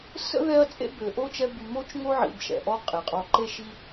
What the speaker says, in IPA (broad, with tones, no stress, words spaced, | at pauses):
sə̰˥ðɛ˦ɐ̯ t͡sʼḛ˥bø˨ʔo˥t͡ʃɛ˦ by˨mo˦t͡ʃ ŋo˥ʕḭ˨bʃɛ̰˩ʔɔ˦ qʼe˩qʼɔ˨ǃe˥ ʃi˦